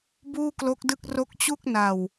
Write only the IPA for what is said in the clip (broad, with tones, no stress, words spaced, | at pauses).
buː˥˩klo˦˥k̚dɯ˥˩k̚ ro˦˥k̚t͡ɕu˥˩k̚ na˨˩w